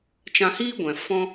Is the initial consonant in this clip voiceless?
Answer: yes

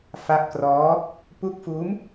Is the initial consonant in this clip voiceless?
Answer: yes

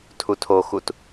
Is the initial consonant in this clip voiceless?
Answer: yes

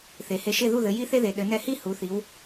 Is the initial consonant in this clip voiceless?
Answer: yes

